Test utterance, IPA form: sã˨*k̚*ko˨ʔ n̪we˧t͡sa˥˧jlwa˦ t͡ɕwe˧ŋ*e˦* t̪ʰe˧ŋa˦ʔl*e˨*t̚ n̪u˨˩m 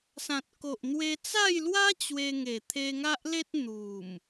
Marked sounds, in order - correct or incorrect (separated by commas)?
incorrect, incorrect, incorrect